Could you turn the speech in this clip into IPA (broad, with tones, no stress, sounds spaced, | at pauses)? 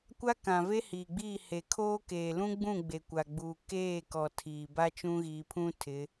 kʷ a˦ k ã˨ v e˦ h iː˨ ɡ͡b iː˦˨ h e˨ kʰ oː˦ k eː˨ l ũ˦ ɡ͡b ũ˦˨ ɡ͡b e˨ kʷ a˨ ɡ͡b uː˨ k eː˦˨ k ɔ˨ tʰ iː˨ b a˦ t͡ʃ ũ˦ ɣ iː˨ pʰ ũ˦ tʰ ɪ˨˦